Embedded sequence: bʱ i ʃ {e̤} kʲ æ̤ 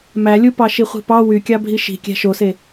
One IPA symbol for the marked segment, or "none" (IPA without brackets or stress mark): i̤